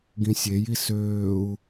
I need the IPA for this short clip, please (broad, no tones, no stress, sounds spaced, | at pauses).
ɡ ĩ sʲ e j i s øː u̯